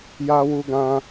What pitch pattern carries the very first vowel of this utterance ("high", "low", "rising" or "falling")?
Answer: high